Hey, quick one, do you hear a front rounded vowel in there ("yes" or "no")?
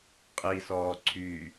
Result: yes